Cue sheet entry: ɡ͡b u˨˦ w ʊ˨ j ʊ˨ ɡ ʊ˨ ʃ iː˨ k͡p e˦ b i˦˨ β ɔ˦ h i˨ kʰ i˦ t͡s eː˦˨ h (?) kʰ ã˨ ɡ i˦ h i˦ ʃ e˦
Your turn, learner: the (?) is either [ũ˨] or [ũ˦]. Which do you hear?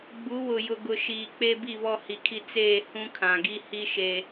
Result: ũ˦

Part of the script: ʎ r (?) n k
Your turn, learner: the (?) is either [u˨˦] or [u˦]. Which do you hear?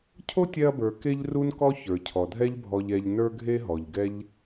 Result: u˦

